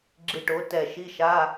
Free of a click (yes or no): no